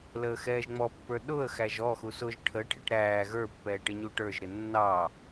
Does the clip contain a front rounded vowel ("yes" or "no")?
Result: no